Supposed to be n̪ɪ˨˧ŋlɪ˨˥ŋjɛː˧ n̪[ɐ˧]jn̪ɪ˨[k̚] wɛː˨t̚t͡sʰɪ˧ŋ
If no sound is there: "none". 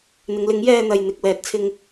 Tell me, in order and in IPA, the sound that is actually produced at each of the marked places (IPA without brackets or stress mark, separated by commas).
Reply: ɐ˨, k̚